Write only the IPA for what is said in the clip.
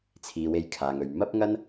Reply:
t͡sʰ iː˨ w e˧ j kʰ aː˨ ŋ ɵ˨ ɥ m ɐ˥ p̚ ŋ ɐ˥ n

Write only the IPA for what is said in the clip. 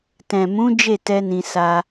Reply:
t ɛ̃˨ m ũ˨˦ d͡ʒ e˦˨ t ɛ˧ n ĩ˧ s a˦

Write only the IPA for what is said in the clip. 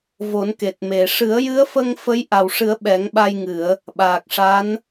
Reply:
v o˨˩˦ n k e˨˩ t̚ m e˨˩˨ ʂ ɨ˨˩˦ ə̯ j ɨ˧˥ ə̯ f ə˧ ŋ f ə˧˥ j ʔ a˨˩ w ʂ ɨ˨˩˦ ə̯ ɓ ɛ˨˩˦ ŋ ɓ a˧ j ŋ ɨ˨˩˨ ə̯ | ɓ aː˨˩ k̚ ʂ a˧˥ n

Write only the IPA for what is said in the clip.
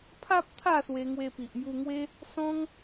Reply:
pʰ a˦ p̚ t̪ʰ a˥˧ s w e˧ ŋ w e˧ p i˨ ʔ m j u˧ ŋ w e˦ | s ɔ̃˦ ŋ

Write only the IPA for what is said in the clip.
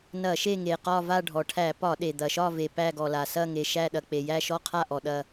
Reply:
n ɐ˧˩˧ ʃ e˦˨ ŋ e˩ q ɒ˦˨ v a˦˨ ɖʱ ɔ˩ ʈʰ æ˧˩˧ p ɒ˧˩˧ ɗ e˩ d̪ ɐ˩ ʃ ɒ˦˨ v e˩ p æ˦˨ ɡ ɔ˩ l a˩ s ɐ˦˨ ŋ e˩ ʃ æ˦˨ ɗ ɐ˩ k͡p e˩ j æ˦˨ ʃ ɔ˦˨ qʰ a˦˨ ʔ ɔ˩ ɗ ɐ˦˨

